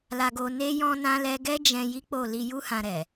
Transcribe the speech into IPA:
l a˧ ɡ o˧ n e˦ j ɔ̃˦ n ã˦ l ɛ˦ ɡ ɛ˦ d͡ʒ ɛ̃˧ j i˦ k͡p o˦˨ l i˧ j u˦ h ã˧ ɾ ɛ˨

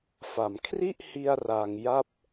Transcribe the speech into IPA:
f a˩˦ m kʰ r i˥˩ ʔ h i˧ a̯ r a˧ ŋ j a˥˩ p̚

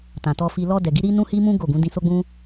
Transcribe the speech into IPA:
t ã˨ t ɔ˧ f i˧ l ɔ˧ d ɛ˨ ɡ i˨˦ ɾ i˦ n ũ˦ h i˦ m ũ˦ ɡ o˦˨ ɡ ũ˨˦ d ĩ˧ s o˦ ɡ͡b ũ˦

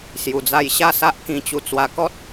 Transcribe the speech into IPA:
s j u˨˩ d͡z a˧ j ɕ a˥˧ s a˦ ʔ k ĩ˧ t͡ɕ u˧ t͡s w a˧ k ɔ˦ t̚

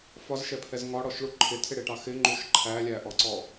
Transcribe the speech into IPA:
f ɒ z ʃ ɛ pʰ ɛ z ŋ ɒ ɽ ɔ ʃ ɭ u ǃʰ ɪ tʰ ɪ ɽ ɪ ʈ ɑ x ɪ ŋ͡ǃ u ʃ ǃʰ æ lʲ æ ʔ ɔ ǀ ɔ

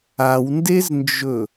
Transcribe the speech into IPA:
a w n d e z n d͡ʒ ɵ

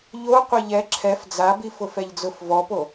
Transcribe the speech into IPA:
ʎ o qʷ ɪ ʎ ɛ ǁʰ ɛ f d͡z a b i f ʊ f ɛ ʎ d͡z ʊ f v ɔ p o

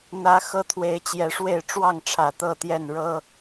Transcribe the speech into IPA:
n̪ ä˨˦ x ɤ˦ t̪ʰ w e˨˦ ɪ̯ t͡ɕ j ɛ˨˦ ʂ w e˥˨ ɪ̯ ʈ͡ʂ w ɑ˥˨ ŋ ʈ͡ʂʰ ä˨˩ t̪ ɤ˥˨ t̪ j ɛ˥˨ n ɻ ɤ˦

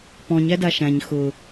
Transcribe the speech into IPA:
p ɔ̃ ɲ æ d a ʃ æ̃ ɲ x ʊ

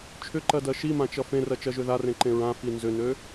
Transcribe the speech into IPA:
t͡ʃʰ ʏ ǃ ɜ d ɜ ʃ i m ã t͡ʃ ʌ f ẽ r ɜ t͡ʃ ɜ ʒ ø ð a r ẽ ǃ ẽ ɹ ã f i n z ʏ n ø

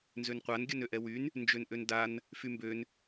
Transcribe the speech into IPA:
n z ø n qʷ a n ɡʲ œ n ø ʔ ɛ w y n | n d͡ʒ ø n ʔ ø n d a n | f y m b ø n

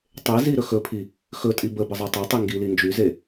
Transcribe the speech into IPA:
tˤ e z i ɾ ɵ x ɵ pʰ i | x ɵ tʼ i b ə b ə zˤ e tˤ ɵ tˤ i ŋ ɡ i l i n d͡ʒ y z e

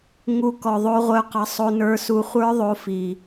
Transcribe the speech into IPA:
ŋ u˧ k ɔ˨ ðˤ o˧ ʁʷ œ˧ q ɑ˧ sˤ o˧ n ə˞˧ s u˧ χʷ ə˞˦ ðˤ o˧ f i˨

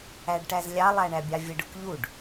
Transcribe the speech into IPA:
æ ɖ ʈ æ z lʲ ɑ lˠ æ ɳ æ bʲ ɑ vʲ ə ɖ ʊ k ʎ u ɖ

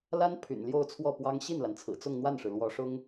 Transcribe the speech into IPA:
l a˥ n pʰ y̰˨˩ n l j o˥˧ ʊ̯ t͡sʰ w ɔ˥˩ p w ɑ˥ ŋ ɕ i˥˩ n l a˩ n t͡sʰ ɹ̩˨˩ t͡s ʊ˥˧ ŋ n̪ w a˥˩ n ʂ ɻ̩˩ l w ɔ˧˥ ʂ ʊ˥ ŋ

